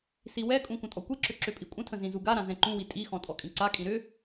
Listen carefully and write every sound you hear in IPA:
s i w ɛ kʼ ũ kʷ ə̃ tʼ ɔ kʷ i ǁ ʏ ǁ ʏ pʼ i kʷʼ ə̃ tʰ ə̃ z ĩ z u ɡ a ɾ ã z ɛ̃ ǃ ũ w i tʼ i x ɔ̃ tʼ ɔ kʼ ĩ ǀ a kʼ ĩ ɾ ʏ

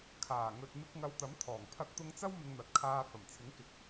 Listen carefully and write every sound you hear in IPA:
kʰ aː˨˩ ŋ ɵ˨ t̚ m ɪ˧ k̚ ŋ ɐ˧ w t̪ ɐ˨˥ m t̪ʰ ɔː˨˩ ŋ pʰ ɐ˧ k̚ t̪ ʊ˧ ŋ t͡s ɐ˥ w m ɪ˧ ŋ n̪ ɐ˨ t̚ kʰ aː˧ f ɐ˨˩ m t͡sʰ ɪ˨˥ ŋ k ɪ˨ k̚

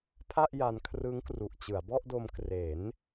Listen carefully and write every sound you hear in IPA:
pʰ a˥˩ ʔ j a˧ n kʰ r ɯ˦˥ ŋ k r u˨˩ ʔ t͡ɕ ɯ˩˦ a̯ b ɔ˥˩ ʔ d o˧ m k r e˩˦ n

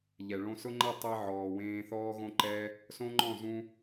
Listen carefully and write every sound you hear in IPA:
ʎ ɛ˨ ɭ õ˦ s ʊ˦ ŋ͡ǃ ɛ˦˨ tˤ ɛ˦ ʕ ɔː˨ w ẽː˧ θ ɔː˦ ɣ õ˦ ǃ ɛ˦ | s õ˦ ŋ͡ǃ ɔ̃˦˨ z ũ˧

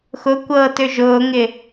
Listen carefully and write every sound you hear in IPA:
x ʊ kʷ ɤː t ø ʒ ʊː ŋ ɪ

